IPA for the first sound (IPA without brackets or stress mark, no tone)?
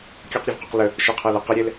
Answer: kʲ